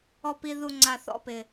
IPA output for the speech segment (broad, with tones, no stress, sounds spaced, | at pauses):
ɔ˧ p i˧ ð u˧ ŋ͡ǀ a˧ θ ɔ̰˥ p ɪ˧